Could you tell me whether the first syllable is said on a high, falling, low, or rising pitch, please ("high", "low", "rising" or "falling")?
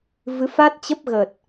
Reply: rising